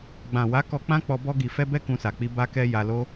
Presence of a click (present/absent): absent